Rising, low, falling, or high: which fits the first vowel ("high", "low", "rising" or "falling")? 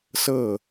falling